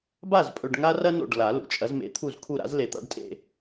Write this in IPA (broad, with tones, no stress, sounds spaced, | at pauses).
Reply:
b a˥˩ z pʼ ɵ˨ ɖ ŋ a˥ r ɐ˥ n o̰˥˩ ɖ l a˨˩˦ l ṵ˨ t͡ʃʼ ɐ˨˦ z m ḛ˨˦ t̪ʰ u˥˩ z kʰ u˥˩ ɾ a̰˥ z l e˨ t̪ a̰˥ ɖ tʼ ḛ˥˧